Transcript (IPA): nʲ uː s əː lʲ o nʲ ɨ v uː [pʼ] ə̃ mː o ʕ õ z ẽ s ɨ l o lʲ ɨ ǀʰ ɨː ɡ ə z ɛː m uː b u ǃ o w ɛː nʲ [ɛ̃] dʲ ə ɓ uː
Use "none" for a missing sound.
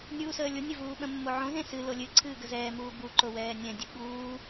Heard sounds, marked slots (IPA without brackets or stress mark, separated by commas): ɓ, ɛ̃